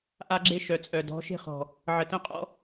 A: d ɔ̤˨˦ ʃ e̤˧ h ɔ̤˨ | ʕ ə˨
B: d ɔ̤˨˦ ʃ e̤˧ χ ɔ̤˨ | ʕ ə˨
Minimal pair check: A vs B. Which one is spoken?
B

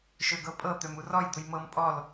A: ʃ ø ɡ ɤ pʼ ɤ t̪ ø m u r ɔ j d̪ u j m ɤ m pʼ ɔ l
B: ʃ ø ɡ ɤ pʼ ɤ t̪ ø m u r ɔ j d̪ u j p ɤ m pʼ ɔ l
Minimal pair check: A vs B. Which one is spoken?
A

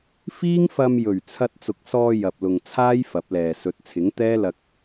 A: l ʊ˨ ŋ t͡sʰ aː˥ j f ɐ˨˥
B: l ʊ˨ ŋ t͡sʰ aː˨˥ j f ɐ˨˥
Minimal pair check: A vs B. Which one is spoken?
A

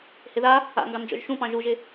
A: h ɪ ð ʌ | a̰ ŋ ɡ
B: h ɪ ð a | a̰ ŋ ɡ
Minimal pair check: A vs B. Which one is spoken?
B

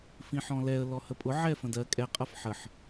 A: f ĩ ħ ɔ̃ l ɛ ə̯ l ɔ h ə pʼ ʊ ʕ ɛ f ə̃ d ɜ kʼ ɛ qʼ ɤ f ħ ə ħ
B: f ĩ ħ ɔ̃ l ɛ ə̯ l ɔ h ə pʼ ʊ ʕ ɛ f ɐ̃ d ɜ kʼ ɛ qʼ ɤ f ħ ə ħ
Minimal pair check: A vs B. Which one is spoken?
A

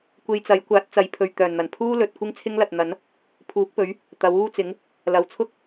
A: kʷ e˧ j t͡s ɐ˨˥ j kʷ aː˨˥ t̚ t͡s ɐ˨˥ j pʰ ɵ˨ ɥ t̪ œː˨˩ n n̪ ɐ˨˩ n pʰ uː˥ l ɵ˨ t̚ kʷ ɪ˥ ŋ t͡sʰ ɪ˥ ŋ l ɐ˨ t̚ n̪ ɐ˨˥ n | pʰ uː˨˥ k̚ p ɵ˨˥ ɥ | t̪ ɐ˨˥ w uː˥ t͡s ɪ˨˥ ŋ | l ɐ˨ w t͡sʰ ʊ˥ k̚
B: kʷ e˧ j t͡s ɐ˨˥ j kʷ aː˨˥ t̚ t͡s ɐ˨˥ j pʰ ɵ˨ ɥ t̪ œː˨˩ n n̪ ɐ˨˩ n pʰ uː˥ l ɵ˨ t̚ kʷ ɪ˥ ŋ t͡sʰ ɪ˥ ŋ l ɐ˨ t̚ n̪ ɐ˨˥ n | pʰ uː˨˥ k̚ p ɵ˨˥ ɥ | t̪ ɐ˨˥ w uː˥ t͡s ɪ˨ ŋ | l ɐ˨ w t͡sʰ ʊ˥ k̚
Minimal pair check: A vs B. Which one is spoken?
A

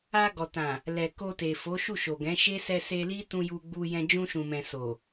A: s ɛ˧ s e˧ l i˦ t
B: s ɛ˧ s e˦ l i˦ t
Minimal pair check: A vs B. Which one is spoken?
A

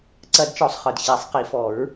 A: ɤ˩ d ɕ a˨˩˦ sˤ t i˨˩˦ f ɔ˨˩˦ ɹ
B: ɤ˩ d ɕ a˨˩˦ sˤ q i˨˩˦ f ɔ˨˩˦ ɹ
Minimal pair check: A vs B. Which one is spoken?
B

